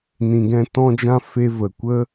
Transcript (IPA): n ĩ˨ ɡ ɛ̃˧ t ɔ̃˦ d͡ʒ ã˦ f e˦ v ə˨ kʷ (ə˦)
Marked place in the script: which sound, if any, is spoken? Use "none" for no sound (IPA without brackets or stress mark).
ə˦